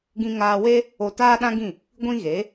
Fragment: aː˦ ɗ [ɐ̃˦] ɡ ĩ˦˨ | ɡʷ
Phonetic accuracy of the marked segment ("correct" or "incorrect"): incorrect